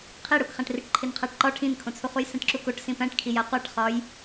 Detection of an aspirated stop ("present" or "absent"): present